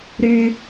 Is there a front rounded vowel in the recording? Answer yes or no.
yes